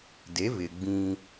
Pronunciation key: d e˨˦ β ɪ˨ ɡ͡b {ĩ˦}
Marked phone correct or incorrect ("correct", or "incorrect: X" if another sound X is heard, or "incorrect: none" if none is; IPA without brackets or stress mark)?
correct